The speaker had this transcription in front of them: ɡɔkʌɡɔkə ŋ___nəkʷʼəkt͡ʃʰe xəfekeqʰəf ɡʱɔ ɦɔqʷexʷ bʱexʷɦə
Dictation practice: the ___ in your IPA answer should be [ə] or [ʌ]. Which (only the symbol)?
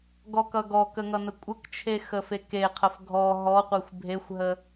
ʌ